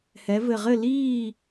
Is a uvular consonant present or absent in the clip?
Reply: present